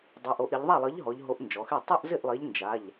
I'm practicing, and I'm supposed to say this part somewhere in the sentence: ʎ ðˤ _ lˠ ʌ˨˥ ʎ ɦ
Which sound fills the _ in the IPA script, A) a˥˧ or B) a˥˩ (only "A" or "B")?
B